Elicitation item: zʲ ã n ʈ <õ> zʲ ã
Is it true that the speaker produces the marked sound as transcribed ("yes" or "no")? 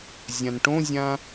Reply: yes